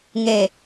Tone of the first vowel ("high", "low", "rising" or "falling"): low